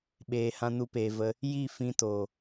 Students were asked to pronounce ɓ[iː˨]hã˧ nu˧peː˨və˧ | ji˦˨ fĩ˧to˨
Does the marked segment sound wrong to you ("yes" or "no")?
yes